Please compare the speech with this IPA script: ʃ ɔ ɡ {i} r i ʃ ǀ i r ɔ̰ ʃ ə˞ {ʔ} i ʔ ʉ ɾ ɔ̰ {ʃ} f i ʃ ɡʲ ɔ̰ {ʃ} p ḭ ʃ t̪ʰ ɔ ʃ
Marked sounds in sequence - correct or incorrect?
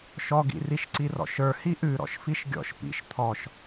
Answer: incorrect: ḭ, incorrect: h, correct, correct

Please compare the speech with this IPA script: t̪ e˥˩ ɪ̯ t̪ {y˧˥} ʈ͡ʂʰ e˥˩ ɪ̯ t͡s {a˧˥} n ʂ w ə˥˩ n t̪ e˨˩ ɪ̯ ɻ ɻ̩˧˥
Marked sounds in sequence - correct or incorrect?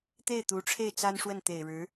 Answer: incorrect: u˧˥, incorrect: a˥

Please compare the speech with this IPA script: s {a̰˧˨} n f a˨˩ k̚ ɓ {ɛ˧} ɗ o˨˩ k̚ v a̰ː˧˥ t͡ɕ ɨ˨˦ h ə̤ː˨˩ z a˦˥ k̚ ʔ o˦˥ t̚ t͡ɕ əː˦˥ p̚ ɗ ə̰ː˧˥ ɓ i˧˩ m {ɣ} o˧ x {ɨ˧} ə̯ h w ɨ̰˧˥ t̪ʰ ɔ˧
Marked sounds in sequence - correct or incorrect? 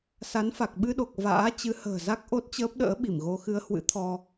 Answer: incorrect: a˨˦, incorrect: ɨ˧, correct, correct

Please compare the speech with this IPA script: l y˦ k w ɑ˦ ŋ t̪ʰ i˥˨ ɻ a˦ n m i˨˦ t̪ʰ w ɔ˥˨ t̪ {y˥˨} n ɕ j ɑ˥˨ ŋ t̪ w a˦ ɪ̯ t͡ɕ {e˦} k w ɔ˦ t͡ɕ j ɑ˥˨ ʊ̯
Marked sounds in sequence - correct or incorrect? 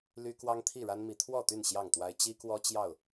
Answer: correct, incorrect: i˦

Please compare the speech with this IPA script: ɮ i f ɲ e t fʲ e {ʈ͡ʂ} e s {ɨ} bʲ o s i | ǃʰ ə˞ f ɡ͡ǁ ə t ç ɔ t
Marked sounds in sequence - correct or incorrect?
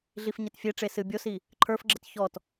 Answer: correct, correct

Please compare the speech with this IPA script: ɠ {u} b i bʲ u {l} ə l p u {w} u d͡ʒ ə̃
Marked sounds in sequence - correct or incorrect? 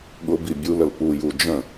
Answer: incorrect: ʊ, correct, incorrect: j

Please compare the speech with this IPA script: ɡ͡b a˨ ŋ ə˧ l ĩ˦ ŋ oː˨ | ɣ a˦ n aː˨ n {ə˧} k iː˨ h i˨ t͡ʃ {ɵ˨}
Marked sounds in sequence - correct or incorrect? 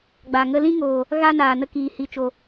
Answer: correct, incorrect: o˨

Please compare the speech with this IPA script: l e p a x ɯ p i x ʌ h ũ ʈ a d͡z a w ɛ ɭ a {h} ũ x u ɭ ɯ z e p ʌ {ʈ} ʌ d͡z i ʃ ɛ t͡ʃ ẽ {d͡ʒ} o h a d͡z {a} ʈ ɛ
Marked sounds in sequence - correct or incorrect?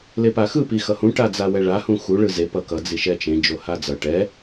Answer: correct, incorrect: k, correct, incorrect: ʌ

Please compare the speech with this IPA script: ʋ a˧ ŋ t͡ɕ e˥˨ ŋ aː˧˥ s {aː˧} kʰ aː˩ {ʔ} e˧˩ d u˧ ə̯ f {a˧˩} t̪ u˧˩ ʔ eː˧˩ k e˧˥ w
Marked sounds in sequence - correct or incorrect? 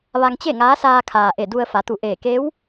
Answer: correct, correct, incorrect: a˩˧

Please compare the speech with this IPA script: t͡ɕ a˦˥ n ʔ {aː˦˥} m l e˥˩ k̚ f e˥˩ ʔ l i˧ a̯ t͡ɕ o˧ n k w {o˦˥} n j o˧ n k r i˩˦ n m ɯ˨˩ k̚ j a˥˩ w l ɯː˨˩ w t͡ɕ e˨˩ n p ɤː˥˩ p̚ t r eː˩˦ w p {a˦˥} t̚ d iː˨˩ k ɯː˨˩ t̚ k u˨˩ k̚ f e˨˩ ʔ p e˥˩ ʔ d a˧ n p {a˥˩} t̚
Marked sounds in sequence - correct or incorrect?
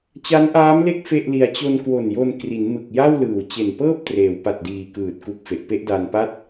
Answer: correct, incorrect: o˨˩, incorrect: a˨˩, correct

